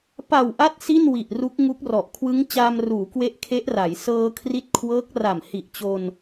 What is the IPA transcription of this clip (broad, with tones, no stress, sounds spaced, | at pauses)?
p a˨˩ w ʔ a˦˥ t̚ s i˥˩ n w i˨˩ ʔ r u˦˥ k̚ ŋ u˦˥ k̚ r ɔ˨˩ ʔ kʰ w ɯ˦˥ ŋ t͡ɕ aː˧ m r uː˩˦ k w e˦˥ ʔ kʰ e˦˥ ʔ r a˩˦ j s ɤː˧ kʰ r i˦˥ t̚ kʰ w ɤː˦˥ k̚ r a˨˩ m h i˨˩ ʔ t͡ɕ o˧ n